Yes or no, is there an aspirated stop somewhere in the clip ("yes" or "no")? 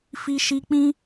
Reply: no